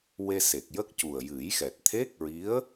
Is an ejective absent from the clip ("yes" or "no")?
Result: yes